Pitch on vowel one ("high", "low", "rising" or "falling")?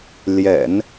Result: low